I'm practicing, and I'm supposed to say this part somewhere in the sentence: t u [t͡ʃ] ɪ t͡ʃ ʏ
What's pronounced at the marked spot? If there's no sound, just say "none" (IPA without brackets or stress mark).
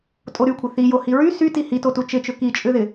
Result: t͡ʃ